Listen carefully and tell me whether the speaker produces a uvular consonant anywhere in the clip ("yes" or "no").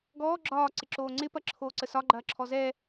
no